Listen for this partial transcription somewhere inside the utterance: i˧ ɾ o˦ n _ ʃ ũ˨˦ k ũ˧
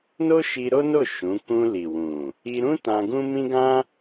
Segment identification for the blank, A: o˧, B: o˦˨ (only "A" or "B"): B